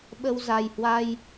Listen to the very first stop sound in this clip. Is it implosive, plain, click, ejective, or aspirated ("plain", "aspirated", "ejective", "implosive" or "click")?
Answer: implosive